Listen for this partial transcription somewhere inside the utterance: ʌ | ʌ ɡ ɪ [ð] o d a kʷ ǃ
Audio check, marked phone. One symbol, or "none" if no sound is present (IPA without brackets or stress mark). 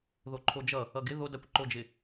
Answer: ð